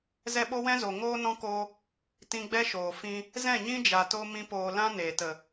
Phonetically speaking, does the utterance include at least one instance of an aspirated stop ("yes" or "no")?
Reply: no